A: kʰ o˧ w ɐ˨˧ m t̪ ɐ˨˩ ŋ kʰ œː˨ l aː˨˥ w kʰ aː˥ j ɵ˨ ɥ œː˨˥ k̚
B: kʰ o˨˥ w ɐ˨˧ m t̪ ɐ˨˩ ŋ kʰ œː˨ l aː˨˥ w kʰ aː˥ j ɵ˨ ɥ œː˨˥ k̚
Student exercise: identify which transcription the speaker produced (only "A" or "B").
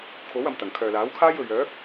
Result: B